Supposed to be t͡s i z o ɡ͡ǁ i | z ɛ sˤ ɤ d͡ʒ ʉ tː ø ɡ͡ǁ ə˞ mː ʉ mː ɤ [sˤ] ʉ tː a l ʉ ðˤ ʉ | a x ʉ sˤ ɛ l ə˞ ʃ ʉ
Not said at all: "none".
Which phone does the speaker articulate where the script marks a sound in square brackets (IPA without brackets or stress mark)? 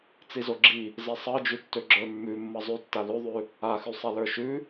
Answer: zˤ